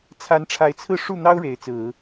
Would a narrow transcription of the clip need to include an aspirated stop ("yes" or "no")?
yes